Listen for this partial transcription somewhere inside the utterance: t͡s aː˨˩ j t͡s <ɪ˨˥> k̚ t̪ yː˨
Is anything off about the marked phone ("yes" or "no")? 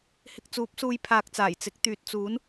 no